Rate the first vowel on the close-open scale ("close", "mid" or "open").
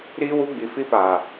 close